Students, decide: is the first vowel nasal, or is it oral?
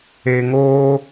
oral